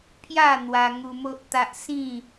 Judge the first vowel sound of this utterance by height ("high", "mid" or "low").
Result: low